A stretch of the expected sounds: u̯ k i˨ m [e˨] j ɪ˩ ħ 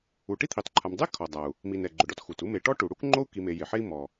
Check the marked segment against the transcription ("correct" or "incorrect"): correct